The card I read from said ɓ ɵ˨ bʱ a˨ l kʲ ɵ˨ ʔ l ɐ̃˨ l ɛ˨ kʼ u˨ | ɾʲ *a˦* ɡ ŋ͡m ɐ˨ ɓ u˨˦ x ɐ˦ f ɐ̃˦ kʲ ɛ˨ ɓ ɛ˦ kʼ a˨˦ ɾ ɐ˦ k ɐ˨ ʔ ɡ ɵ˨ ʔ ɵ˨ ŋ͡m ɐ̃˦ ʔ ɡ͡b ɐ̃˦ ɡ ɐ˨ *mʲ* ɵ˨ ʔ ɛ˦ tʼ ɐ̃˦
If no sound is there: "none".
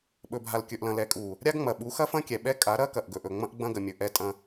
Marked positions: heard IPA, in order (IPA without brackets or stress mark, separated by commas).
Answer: a˦, mʲ